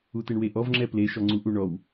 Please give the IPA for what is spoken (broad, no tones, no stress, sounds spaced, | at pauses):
u t e ɳ w e ʔ ɔ v ŋ͡ǁ ɛ p l e ʃ ɔ ŋ͡ǀ u ʔ u ɳ ɔ w